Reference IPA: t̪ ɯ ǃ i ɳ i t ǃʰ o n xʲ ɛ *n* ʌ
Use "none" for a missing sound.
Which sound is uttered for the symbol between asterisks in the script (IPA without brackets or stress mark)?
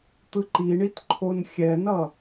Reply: n